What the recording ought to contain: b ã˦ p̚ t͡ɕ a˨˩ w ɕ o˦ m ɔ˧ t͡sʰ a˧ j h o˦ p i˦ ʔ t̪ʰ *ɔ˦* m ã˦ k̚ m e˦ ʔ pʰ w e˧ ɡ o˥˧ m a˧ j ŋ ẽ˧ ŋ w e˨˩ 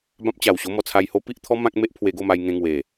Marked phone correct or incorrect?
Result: correct